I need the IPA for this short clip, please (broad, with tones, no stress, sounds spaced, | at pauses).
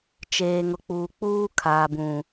t͡ʃ eː˨ ŋ ʊ˨ k͡p uː˨ k͡p uː˦ kʰ aː˨ b ũ˨